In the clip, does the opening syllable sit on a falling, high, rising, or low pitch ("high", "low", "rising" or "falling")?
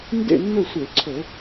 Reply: falling